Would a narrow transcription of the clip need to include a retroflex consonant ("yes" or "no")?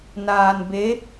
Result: no